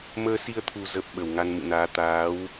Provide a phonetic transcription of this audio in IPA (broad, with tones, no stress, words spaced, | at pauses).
məː˧si˧ə̯t̪ʰu˨˩ zə˨˩p̚ ɓə˨˩wŋa˧nmɨ̰˧˨naː˨˦ t̪aː˨˦w